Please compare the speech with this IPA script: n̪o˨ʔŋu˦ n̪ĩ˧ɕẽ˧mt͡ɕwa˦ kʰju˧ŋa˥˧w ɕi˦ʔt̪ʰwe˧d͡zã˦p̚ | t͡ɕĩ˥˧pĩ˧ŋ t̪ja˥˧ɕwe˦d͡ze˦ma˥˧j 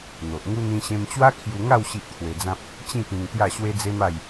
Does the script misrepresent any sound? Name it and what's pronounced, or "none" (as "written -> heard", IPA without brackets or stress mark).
none